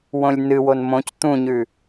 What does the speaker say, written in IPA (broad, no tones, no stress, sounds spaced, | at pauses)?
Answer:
w õ lʲ n ɨ w o n m õ c t̪ ũ ɲ ʉ